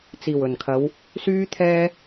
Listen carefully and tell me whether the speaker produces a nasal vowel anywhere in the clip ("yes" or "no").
no